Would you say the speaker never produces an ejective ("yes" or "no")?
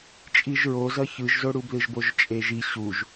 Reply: no